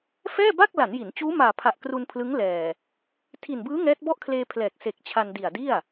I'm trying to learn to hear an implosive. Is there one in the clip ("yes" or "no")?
no